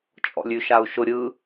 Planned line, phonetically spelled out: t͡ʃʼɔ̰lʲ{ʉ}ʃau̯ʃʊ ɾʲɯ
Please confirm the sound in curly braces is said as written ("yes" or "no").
yes